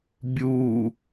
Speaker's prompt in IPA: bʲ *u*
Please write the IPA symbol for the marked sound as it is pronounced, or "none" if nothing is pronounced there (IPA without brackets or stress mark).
u